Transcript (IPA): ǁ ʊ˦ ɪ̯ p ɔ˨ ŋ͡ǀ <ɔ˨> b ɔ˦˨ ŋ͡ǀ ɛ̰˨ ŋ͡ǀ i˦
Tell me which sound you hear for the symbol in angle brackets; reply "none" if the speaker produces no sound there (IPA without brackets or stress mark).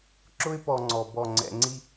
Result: ɔ˨